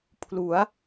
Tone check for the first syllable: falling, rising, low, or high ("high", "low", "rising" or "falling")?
rising